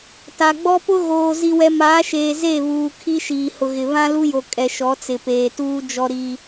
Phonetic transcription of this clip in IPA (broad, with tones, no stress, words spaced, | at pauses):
ta˨ɡ͡bɔ˦pʊ˦ ɣoː˨ zi˦wɛ˦ maː˨˦ʃeː˨ ze˦˨βuː˨ kʰi˦ʃiː˨hʊ˨ɣɪ˨ βã˦lu˦jo˨ kʼɛ˨ʃɔ˨˦t͡sɪ˨ peː˨tuː˦d͡ʒɔ˦ ɾi˦